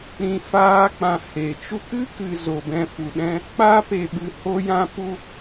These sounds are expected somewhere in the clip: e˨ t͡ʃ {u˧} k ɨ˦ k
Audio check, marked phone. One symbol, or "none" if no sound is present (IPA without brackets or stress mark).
u˧